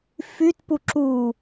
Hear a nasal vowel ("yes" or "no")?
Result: no